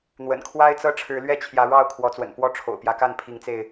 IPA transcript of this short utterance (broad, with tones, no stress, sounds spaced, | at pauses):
n̪ w ə̰˨˩ n kʰ w a˦ ɪ̯ t͡s ɤ˦ ʈ͡ʂʰ ɻ̩˨˦ l ɥ ɛ˥˨ t͡ɕʰ j ä˨˦ ɻ ɑ˥˨ ʊ̯ kʰ w ɔ˨˦ t͡s w ə̰˨˩ n p w ɔ˥˨ ʈ͡ʂʰ o̰˨˩ ʊ̯ p j ä˦ k a˥˨ n pʰ i˨˦ ŋ t͡s e˧ ɪ̯